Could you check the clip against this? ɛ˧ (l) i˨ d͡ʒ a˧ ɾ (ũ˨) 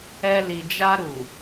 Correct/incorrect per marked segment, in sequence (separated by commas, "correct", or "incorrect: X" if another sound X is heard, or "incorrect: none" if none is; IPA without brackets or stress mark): correct, incorrect: u˨